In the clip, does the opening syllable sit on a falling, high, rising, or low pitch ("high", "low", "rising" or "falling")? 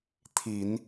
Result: low